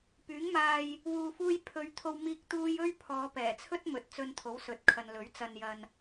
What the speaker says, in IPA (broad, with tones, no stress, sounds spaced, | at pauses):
p yː˨˥ ŋ m aː˧ j | w uː˧ f uː˥ j pʰ ɵ˨˧ ɥ t̪ʰ o˧ w m iː˧ k̚ t̪ uː˥ j ɵ˥ ɥ pʰ ɔː˨˧ p ɛː˨˩ t͡sʰ ɵ˥ t̚ m ɵ˨ t̚ t͡s ɵ˧ n t̪ʰ o˨˥ w s ɵ˨ t̚ kʰ ɐ˨ n l ɵ˨˥ ɥ t͡s ɐ˧ n j ɐ˧ n